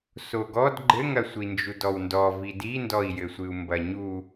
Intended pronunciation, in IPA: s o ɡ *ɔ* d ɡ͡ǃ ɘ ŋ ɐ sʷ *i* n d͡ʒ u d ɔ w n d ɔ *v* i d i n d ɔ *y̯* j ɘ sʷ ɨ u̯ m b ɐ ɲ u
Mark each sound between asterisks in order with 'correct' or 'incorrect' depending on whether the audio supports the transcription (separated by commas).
correct, correct, correct, incorrect